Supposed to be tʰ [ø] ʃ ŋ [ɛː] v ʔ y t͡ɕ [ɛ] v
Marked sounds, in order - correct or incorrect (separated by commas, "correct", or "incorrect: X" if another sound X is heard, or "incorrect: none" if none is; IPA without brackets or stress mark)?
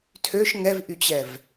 correct, incorrect: ɛ, correct